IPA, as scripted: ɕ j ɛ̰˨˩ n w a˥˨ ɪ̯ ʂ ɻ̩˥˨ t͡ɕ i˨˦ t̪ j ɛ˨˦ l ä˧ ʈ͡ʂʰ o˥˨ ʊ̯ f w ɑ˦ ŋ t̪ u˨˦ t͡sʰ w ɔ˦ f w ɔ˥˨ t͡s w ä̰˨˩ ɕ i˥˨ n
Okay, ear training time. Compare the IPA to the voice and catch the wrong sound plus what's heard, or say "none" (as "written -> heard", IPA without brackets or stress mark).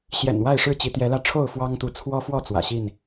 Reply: none